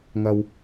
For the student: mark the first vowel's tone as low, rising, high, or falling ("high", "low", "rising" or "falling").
low